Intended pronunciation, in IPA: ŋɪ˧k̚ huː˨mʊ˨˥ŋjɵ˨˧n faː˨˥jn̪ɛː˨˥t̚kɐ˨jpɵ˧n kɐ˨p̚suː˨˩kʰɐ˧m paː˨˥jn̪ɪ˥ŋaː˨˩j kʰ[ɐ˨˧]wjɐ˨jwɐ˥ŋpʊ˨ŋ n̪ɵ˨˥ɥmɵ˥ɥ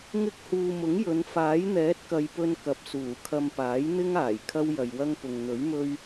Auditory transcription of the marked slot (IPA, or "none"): ɐ˥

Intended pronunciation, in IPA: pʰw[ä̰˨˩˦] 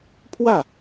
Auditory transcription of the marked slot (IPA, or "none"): ä˥˩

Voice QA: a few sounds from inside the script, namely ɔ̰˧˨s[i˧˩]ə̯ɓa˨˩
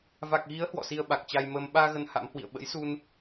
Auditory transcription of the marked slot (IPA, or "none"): i˧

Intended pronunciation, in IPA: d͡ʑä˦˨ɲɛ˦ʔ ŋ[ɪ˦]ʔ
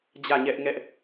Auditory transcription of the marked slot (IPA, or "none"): ɛ˦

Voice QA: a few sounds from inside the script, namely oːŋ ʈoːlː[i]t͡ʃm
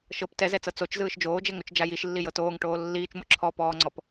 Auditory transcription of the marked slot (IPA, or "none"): iː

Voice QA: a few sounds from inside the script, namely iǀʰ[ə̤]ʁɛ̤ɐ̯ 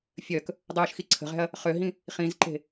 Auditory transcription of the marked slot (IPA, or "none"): ə̤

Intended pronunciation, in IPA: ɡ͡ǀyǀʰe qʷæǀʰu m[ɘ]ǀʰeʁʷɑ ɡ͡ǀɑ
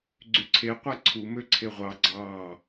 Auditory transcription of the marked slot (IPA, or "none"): ø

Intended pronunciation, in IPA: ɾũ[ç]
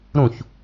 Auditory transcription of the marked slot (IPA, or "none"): ç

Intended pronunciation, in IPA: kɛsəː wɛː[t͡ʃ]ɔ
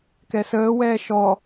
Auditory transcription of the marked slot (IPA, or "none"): ʃ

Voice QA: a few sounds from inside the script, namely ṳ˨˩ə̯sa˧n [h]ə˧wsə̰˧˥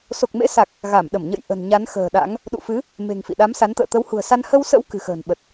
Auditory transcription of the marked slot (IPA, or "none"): h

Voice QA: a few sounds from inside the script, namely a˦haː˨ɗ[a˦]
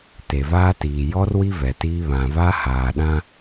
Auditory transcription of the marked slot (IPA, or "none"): ã˦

